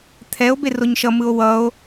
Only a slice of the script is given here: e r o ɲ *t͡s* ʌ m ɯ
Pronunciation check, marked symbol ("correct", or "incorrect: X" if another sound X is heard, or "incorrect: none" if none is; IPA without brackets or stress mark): incorrect: ʃ